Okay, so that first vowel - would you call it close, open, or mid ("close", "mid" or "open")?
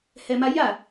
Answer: mid